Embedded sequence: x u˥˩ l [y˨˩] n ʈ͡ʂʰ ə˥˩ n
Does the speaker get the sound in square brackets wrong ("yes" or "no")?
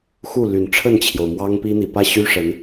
no